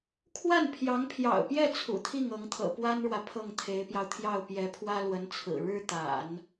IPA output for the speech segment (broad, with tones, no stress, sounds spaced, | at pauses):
kʰ w a˥˩ n pʰ j ɑ˧˥ ŋ pʰ j ɑ̰˨˩ ʊ̯ p j ɛ˥˩ t͡sʰ ṵ˨˩ t̪ʰ i˥˩ ŋ ɤ˧˥ ŋ t̪ʰ ɤ̰˨˩ p w a˥ n ɻ w ä˨ pʰ ɤ˥˩ ŋ t̪ʰ e˧˥ ɪ̯ p j ɑ˧ ʊ̯ t̪ʰ j ɑ˥˩ ʊ̯ p j ɛ˧˥ pʰ w ä˥ l w ə˧˥ n t͡sʰ ɹ̩˨˩ ɻ ɻ̩˥ t̪ a̰˨˩˦ n